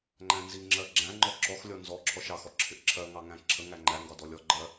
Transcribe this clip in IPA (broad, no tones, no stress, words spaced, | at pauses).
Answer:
ŋ͡ǃæ̃nziŋ͡ǁɜ ɡ͡ǁæ̃ ŋ͡ǃɔǁɔxlʲɔ nzɔǁʰɔʃ ɑxɔ ǁʰɪʔǁʰɜŋɑ ŋæ̃ǁʰəŋæ ŋ͡ǃæŋɡɒ dɔlʲɔɡ͡ǃɜ